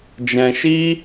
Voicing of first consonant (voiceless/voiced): voiced